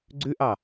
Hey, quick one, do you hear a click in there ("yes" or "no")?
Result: yes